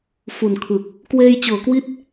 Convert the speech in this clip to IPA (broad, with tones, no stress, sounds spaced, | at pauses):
f u˨˩ n kʰ ɯ˨˩ k̚ | k w eː˧ j t͡ɕ ɤː˩˦ k w i˦˥ t̚